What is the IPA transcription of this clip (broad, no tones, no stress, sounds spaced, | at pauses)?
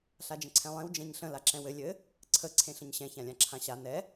ɬ a d͡ʒ ə̃ ǀʰ ɛ̃ lˠ ẽ w d͡ʒ ɛ̃ ɲ ɬ ə̃ l a ǁ ɛ̃ w ɘ lʲ ɘ | ǀʰ ə ǀʰ ẽ ɬ ə̃ ɲ ɕ ɛ̃ ç ã lʲ ã ǁʰ ã ɕ a n ɛ